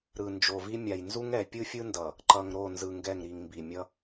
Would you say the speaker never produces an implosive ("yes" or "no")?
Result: yes